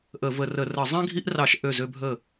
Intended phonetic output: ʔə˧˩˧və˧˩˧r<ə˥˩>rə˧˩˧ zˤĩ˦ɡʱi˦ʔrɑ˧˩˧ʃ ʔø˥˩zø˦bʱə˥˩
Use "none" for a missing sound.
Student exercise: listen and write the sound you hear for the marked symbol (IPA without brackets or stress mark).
ə˧˩˧